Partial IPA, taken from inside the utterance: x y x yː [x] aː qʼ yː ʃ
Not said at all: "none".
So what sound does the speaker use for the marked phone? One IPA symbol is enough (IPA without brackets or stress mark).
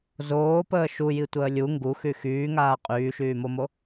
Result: ŋ